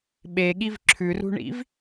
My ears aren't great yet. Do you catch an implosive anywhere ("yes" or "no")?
yes